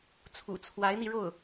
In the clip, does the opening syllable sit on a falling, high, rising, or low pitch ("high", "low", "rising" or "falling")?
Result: low